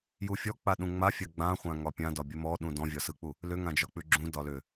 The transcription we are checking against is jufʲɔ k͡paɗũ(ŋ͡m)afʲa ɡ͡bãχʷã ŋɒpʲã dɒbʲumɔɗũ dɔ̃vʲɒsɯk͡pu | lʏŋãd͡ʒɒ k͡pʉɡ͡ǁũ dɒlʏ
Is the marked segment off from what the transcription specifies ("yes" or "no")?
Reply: no